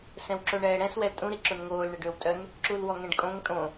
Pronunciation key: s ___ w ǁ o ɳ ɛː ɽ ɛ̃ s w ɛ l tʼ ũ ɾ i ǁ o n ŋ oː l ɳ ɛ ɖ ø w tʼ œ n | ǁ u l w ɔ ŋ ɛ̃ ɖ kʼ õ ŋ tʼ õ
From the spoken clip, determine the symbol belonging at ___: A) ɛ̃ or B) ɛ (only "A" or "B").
A